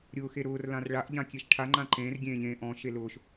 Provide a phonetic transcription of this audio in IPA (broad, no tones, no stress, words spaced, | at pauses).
ɾʲʊːxe ɾʊːrlãr ɭaʔ ʎãkʲeʃʈʰa ŋ͡ǃãǃẽːr ɡʲẽːʎẽːʔɔ̃ ʃelʊːʃ